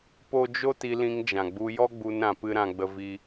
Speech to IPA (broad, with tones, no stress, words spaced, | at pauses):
po˦ d͡ʒo˦t i˧lĩ˧ŋd͡ʒã˨ ɡ͡bu˧jɔ˦ɡ͡bu˧n ɾã˧pɨ˦ ɾã˦ɡ͡bə˦vi˦